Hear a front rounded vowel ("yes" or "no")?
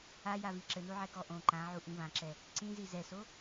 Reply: no